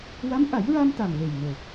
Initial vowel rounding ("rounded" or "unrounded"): unrounded